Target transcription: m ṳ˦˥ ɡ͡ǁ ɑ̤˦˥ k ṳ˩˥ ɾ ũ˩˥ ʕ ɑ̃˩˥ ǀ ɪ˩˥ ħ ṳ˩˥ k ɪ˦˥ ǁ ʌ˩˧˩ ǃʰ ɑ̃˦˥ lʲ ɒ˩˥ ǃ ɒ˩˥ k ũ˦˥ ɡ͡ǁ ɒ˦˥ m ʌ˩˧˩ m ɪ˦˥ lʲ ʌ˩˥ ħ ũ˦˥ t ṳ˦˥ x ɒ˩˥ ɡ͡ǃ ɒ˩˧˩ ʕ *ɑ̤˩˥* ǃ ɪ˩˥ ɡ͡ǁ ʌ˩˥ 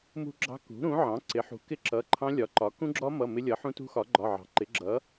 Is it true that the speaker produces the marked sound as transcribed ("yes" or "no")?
yes